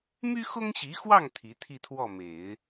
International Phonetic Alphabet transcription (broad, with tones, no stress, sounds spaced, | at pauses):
m y˥ x ʊ˥ ŋ ɕ i˧˥ x w ɑ˥˩ ŋ t̪ʰ i˧˥ t̪ʰ i˥˧ t̪ʰ w ɔ˥˩ m e˨˩˦ ɪ̯